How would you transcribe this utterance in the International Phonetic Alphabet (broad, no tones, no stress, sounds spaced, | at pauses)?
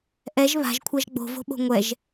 ʔ ɛ ʒ β a̤ ʒ kʷʰ a ʒ ɡ͡b o̤ v o̤ ɓ o̤ ŋʷ ɛ ʒ